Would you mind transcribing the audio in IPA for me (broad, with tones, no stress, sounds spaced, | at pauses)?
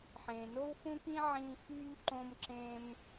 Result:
ħ ẽː˩ n o˥ w x ũ˥ k ĩ˥ ʕ ĩː˥ x yː˥ ʎ ǃ õ˥ m ǁ ẽ˥ m